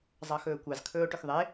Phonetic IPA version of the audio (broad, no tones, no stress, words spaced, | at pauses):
zˤɑxɵːkʷɑz kʰɵːo̯ʈøxðˤe